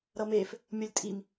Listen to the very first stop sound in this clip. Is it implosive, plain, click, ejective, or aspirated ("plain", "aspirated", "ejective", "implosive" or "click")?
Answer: ejective